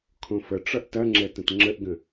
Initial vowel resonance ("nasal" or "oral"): nasal